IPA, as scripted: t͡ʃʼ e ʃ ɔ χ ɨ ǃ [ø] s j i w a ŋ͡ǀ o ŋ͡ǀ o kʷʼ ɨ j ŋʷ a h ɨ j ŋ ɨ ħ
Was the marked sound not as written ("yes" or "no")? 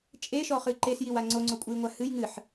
yes